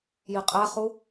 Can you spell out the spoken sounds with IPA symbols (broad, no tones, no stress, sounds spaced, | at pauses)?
j i qʼ æ χ u